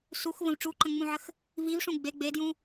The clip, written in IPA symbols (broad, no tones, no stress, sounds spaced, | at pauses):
s u x v ə̃ v ʈ͡ʂ u ǃ ə̃ ŋ͡m ũ ʕ ə x | v i v ʂ ũ ɡ͡b e ɡ͡b e d j ũ